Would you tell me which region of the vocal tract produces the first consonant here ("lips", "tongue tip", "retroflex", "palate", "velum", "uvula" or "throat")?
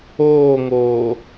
velum